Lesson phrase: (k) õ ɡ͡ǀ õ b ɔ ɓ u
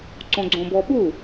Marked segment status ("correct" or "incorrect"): incorrect